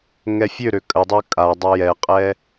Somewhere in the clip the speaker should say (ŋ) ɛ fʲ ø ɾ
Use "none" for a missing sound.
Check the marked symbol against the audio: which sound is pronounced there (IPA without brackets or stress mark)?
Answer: ŋ